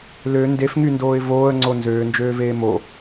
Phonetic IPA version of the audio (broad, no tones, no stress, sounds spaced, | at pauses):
l ø n d e f ŋ y n d oː ɪ̯ v oː ə̯ ŋ͡ǀ o n z øː n d͡ʒ øː v eː m o